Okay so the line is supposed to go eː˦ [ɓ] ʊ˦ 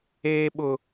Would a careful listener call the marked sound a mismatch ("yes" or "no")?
no